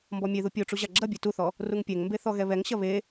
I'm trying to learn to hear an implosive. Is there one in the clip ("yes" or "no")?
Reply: no